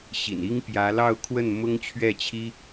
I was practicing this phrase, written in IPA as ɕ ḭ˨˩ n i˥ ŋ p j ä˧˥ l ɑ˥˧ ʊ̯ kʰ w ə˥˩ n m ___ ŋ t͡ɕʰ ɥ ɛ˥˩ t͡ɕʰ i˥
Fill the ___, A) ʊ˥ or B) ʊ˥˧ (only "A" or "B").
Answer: A